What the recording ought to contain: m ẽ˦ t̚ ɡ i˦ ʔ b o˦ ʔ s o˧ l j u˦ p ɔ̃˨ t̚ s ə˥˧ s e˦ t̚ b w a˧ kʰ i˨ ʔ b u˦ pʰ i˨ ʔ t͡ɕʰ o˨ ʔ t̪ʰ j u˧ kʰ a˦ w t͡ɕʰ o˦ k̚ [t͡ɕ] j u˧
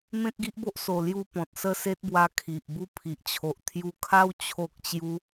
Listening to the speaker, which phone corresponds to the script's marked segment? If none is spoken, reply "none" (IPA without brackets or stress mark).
t͡ɕ